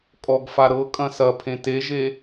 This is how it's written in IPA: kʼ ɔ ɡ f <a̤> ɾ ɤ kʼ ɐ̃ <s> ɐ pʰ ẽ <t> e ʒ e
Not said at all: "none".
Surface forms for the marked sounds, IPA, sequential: a, s, t

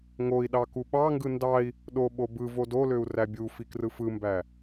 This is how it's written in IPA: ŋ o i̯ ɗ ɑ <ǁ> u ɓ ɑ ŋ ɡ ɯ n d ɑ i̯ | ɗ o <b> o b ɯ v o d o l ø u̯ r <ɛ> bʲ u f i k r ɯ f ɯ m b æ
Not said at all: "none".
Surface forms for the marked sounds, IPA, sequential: k, ɓ, æ

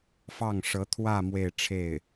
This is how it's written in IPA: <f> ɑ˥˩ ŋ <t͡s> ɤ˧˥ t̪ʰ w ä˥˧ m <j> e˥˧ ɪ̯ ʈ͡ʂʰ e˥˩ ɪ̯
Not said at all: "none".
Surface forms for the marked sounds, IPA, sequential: f, ʂ, w

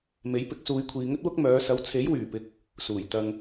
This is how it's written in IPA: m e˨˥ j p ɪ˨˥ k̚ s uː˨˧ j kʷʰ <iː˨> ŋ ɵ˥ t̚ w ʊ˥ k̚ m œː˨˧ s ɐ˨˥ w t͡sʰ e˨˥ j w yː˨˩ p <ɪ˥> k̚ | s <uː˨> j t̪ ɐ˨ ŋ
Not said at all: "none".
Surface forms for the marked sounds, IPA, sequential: iː˨, ɪ˨˥, uː˨˩

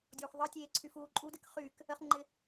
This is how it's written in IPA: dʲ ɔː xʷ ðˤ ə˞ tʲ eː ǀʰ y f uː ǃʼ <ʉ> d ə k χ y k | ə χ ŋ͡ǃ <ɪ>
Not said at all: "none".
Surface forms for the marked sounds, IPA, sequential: u, ɪ

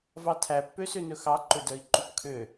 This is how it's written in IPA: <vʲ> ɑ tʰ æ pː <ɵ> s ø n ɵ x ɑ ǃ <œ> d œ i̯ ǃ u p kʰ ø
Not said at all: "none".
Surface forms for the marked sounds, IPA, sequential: v, ø, ɵ

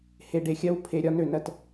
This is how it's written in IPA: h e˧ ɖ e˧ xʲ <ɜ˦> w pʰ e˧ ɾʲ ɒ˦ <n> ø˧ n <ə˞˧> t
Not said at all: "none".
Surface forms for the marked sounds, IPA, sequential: ɜ˦, n, ɜ˧

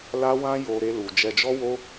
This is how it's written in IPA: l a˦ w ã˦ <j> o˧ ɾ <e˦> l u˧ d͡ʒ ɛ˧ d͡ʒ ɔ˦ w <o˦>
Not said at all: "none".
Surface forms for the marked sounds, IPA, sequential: j, e˦, o˦

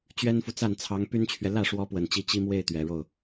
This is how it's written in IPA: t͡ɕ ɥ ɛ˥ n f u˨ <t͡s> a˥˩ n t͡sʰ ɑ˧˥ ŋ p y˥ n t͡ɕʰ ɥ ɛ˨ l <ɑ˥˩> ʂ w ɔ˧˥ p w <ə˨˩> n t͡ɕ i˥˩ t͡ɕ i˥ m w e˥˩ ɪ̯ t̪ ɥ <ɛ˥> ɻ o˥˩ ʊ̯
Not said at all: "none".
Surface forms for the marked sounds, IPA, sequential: t͡s, ä˥˩, ə˨˩, ɛ˨˩

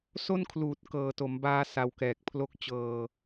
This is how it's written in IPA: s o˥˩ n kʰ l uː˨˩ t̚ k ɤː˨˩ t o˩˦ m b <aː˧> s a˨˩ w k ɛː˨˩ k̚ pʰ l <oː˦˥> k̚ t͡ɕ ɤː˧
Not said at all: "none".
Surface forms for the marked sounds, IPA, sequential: aː˧, o˦˥

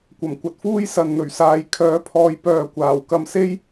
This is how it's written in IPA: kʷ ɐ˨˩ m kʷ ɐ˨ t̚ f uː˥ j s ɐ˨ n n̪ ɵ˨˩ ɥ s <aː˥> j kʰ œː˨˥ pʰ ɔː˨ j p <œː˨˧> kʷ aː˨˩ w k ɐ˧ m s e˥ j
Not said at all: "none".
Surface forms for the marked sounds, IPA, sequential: aː˨˧, œː˨

